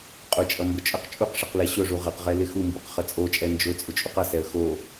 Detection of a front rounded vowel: absent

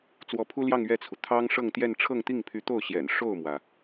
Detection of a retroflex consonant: present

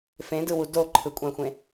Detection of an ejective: present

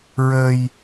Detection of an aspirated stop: absent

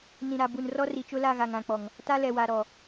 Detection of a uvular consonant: absent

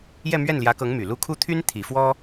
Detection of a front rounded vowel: present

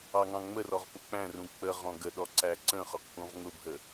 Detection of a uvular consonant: present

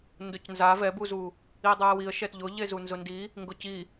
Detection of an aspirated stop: absent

